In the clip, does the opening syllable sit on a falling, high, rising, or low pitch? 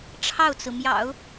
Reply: falling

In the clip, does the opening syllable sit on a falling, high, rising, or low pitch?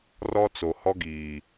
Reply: high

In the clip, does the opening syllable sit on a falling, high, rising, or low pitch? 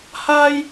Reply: high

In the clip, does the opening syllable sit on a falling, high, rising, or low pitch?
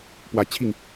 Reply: low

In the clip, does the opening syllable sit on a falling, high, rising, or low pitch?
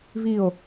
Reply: falling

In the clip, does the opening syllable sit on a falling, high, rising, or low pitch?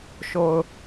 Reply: low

